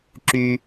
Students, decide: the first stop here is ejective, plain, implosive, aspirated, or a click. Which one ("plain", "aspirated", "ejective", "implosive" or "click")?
click